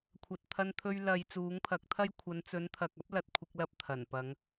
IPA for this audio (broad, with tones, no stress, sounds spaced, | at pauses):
kʷʰ ɐ˨ t̚ t̪ʰ ɐ˧ n t̪ʰ ɵ˧ ɥ l ɐ˨ j t͡s uː˨˥ ŋ pʰ ɐ˨˥ k̚ t̪ʰ ɐ˥ j kʷʰ ɐ˨˧ n t͡s ɵ˨˧ n t̪ʰ ɐ˨ k̚ ɐ˥ p̚ l ɐ˨ t̚ kʷʰ ɪ˧ k̚ l ɐ˨˥ p̚ t̪ʰ ɐ˨˩ n p ɐ˨˧ ŋ